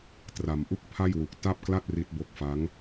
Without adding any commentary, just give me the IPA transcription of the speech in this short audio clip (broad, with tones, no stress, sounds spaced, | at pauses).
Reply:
t r a˩˦ m ʔ u˥˩ k̚ pʰ a˥˩ j w u˨˩ k̚ t a˥˩ p̚ k l a˥˩ t̚ r i˦˥ t̚ b o˦˥ k̚ f a˦˥ ŋ